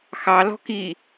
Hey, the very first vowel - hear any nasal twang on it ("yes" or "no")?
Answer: no